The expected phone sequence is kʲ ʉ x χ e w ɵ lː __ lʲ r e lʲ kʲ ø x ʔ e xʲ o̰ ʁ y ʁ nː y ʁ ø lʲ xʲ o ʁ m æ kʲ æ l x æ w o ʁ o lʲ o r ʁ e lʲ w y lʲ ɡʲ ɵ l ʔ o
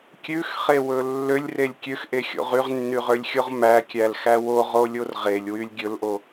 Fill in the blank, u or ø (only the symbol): ø